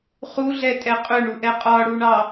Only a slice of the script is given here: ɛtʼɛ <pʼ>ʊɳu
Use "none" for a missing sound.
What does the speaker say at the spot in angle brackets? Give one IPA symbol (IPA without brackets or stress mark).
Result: qʼ